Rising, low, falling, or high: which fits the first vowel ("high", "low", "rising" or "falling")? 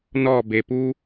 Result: falling